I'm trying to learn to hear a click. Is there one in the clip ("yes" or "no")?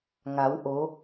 no